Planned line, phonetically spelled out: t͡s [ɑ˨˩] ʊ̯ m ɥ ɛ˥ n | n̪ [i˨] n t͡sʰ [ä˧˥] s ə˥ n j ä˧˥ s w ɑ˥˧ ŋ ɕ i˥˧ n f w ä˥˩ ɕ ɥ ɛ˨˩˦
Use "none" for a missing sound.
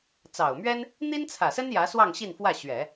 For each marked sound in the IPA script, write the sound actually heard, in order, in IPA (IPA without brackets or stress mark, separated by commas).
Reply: ɑ˨˩, i˥, ä˨˩